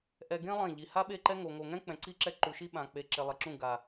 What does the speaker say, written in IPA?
ʔ ɛ˨ ɡ ẽ˦ lˠ ẽ˦˨ ʎ i˨ h a˦ ɓ e˦˨ ǃ ɛ˦ ŋ o˨ ŋ o˨ ŋ ɛ̃˦ k͡p ɛ̃˨ ǀ i˦ ǁ ɛ˦ ǃ u˨ ʃ i˦ ɓ ã˨ k͡p e˨ ǁ e˨ lˠ ɛ˨ ǁ ũ˦˨ ɡ a˨

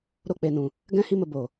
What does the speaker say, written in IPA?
ɾ o˧ k͡p e˨ n ũ˨ | ɡ ɛ̃˦ h i˦ m ə˧ b oː˨

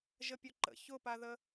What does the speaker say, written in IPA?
ʒ ə pʲ ɵ ǃ ə̰ ç ʊ p a ð ə

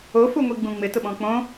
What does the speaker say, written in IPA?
o f u ŋʷ i ɡ͡b ũ ŋ͡m ɪ t ʊ ɓ ɔ̃ k͡p õ

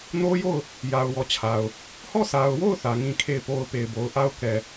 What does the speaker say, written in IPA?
n o˦ j o˦˨ ʊ̯ | j a˨ ʊ̯ w ɔ˨ t͡ɕʰ a˨ ʊ̯ | h ɔ˦˨ s a˨ ʊ̯ w o˦˨ ʊ̯ θ ä˨ ŋ ĩ˦ kʰ e˦˨ ɪ̯ p o˦ ʊ̯ p e˨ ɪ̯ b o˨ ʊ̯ ʔ a˦ ʊ̯ k ɛ˦

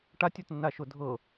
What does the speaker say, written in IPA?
ʈ a tʲ o t nː a ʃ o dʱ ɤ

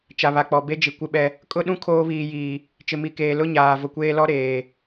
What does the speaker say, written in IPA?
t͡ʃ a˨ β a˨ k͡p ɔ˨ b e˦ d͡ʒ i˨ kʷ ɪ˦˨ ɓ ɛ˦ | kʼ ʊ˦ ɗ ũ˦ kʰ oː˦ β iː˨ j iː˨ | t͡ʃ ɪ˨ m i˨ k eː˨ l ʊ˦ ɲ aː˨ v ʊ˨ kʷ eː˦ l ɔ˦ ɾ eː˨

